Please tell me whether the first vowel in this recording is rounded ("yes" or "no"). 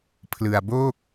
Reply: no